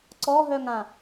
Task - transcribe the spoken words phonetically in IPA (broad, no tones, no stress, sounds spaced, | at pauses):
ǀ ɔ ɦ œ ŋ ã